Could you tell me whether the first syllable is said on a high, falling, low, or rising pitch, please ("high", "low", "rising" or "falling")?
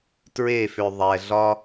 falling